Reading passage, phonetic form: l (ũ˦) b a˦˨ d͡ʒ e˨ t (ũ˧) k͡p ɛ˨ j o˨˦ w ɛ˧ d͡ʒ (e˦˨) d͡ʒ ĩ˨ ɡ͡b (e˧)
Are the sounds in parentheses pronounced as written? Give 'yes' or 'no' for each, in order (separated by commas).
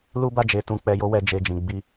no, no, no, no